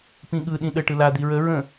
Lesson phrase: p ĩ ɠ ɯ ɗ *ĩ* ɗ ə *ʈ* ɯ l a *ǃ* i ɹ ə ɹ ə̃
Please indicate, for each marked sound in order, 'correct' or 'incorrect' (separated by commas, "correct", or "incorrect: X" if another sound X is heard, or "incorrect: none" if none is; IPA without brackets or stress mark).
correct, correct, incorrect: d̪